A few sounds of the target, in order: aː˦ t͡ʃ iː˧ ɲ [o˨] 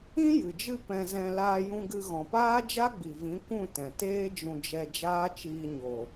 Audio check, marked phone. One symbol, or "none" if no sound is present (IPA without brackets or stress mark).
o˨